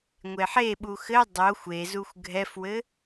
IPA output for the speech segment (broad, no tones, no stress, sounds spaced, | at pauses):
ŋʷ e ħ e ɓ u x ɘ dˤ o xʷ e z u xʷ ɡʱ ɛ f w ɘ